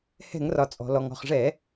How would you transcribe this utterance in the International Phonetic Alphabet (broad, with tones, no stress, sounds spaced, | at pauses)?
h ɛ̤˧˩˧ ŋ r ɒ˩ t͡sʼ ɔ̤˩ l ɔ˩ ŋ ɔ̤˩ χ ʐ ɛ˧˩˧